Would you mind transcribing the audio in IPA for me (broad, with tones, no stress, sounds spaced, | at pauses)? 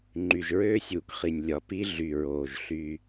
ŋ͡ǃ y˨ ʒ ɹ øː˦ sʲ uː˨ k χ i˨ nʲ lʲ ɒ˨ p i˦ ɮ y˨ ɹ oː˨ ʒ ɬ y˦